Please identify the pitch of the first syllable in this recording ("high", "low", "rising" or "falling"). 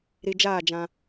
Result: low